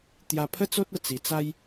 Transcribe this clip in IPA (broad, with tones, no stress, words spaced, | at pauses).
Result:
t̪ja˧pʰə˥˧t͡so˦t̚ ə˨˩t͡si˨˩t͡sa˦j